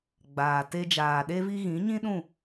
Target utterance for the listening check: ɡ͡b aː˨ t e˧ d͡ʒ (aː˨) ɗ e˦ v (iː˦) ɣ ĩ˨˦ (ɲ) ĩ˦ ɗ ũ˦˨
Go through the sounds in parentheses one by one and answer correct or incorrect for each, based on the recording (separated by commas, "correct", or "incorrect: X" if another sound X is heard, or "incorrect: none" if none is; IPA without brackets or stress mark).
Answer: correct, incorrect: i˦, correct